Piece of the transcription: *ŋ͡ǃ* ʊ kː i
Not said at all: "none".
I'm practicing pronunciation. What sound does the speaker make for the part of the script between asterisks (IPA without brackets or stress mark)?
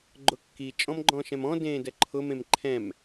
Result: ɡ͡ǃ